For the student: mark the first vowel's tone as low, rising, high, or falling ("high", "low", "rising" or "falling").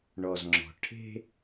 low